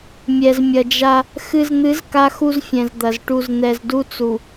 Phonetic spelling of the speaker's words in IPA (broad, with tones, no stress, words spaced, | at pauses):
mʲɛ˨zmʲɐ˨d͡ʒa˦ | xɨ˨zn̪ɨ˨˦z ka˦xu˦zfʲɛ̃˨zd̪ɐ˨z ʈu˨zn̪ɛ˨zdu˦ t͡su˨